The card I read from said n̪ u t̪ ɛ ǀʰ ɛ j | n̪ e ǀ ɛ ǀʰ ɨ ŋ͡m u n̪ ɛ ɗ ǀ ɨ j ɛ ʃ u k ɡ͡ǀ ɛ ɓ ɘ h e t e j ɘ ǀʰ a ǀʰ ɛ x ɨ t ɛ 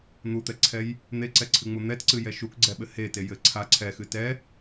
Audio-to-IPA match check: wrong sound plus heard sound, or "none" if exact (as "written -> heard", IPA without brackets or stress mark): ɗ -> t